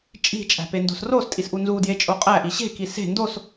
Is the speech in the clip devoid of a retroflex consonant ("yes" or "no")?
yes